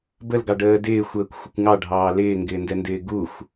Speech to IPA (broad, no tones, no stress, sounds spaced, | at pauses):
b ə l ɡ ɑ ɖ əː d ɪː xʷ əː kʷ xʷ ɪ kʷ ŋ ɑ ɖʱ ɑː l ɪː ŋ ɡ ɪː n d ɛ n d ɪː ɡ u xʷ